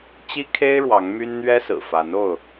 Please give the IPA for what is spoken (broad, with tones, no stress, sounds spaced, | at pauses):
t͡ɕ i˦ kʰ e˦ ɪ̯ ɻ w ɑ˨˦ ŋ m y˦ n n̪ ɥ ɛ˦ s ɹ̩˨˩ f a˨˦ n o˥˨ ʊ̯